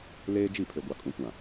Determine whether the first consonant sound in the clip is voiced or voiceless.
voiced